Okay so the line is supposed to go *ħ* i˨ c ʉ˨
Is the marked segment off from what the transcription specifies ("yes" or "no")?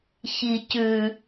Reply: yes